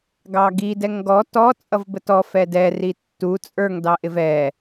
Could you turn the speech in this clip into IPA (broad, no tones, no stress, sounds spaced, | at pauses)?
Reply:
ɡ ɑ ɡ i d ɛ ŋ ɡ ɔ t ɔ t͡sʼ ʌ v b ə t ɔ f ɛ d ɛ r i tː u t͡sʼ ə˞ ŋ d ɑ ʔ ɪ v ɛ